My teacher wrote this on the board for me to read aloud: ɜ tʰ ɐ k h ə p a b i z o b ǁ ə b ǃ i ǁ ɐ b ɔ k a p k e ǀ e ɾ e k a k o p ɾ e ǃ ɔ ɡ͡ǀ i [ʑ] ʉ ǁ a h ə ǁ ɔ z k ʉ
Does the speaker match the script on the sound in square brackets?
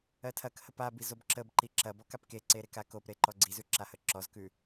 no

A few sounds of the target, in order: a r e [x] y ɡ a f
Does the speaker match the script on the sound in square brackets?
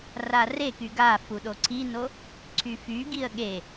no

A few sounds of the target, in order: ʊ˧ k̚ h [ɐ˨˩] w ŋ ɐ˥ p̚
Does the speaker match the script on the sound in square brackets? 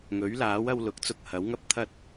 no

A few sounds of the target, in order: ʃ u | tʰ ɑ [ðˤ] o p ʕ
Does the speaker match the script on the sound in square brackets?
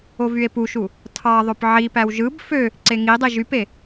yes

